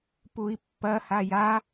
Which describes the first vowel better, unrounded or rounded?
rounded